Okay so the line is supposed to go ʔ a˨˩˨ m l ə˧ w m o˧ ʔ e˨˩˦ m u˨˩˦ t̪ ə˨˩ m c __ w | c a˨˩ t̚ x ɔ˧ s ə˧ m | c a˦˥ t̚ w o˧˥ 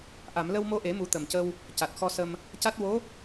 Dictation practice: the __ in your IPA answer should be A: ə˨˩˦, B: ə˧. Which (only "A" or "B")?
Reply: B